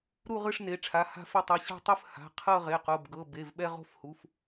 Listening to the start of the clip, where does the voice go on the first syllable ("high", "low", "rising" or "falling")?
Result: falling